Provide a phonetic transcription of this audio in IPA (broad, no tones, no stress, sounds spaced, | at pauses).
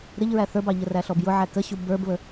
ɾ ɪ ʎ ɹ æ θ ə˞ b ɑ ʎ ə r æ ɬ ɔ b j ʊ ʕ æ k ə ɕ u b ə˞ b β ə